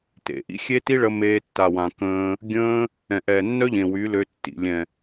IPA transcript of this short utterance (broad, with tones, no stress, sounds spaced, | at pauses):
t ḛ˨ ʔ ḭ˦ xʲ e˦ t i˦ ɭ ə˧ m eː˧ tː a˨ w ã˨ k ə̃ː˧ | ɡʲ ə̃ː˧ | ɛ̃˨ ʔ ɛː˨ nː œ˦ ʎ ẽ˨ w y˨˦ l ø˧ tː ḭ˨ lʲ ɛ̃˨